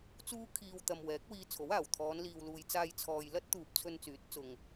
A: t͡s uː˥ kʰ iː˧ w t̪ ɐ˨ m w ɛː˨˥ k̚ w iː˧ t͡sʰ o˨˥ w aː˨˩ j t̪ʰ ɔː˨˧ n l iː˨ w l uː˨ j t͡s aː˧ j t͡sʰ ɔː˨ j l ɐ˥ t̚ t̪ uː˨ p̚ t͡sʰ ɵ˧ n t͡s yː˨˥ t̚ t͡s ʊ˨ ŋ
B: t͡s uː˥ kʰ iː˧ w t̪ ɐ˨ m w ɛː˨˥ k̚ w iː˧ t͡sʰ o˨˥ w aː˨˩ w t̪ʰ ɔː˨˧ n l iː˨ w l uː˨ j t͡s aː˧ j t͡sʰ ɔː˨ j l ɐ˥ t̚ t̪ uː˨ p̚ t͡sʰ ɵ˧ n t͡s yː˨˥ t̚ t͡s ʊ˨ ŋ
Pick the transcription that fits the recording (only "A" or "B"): B